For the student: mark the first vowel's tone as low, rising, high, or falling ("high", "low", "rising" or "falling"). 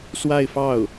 falling